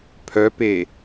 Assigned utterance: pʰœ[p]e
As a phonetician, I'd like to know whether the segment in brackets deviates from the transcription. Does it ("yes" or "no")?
no